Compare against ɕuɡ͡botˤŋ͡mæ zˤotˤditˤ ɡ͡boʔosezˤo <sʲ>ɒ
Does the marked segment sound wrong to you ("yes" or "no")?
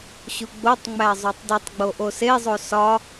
yes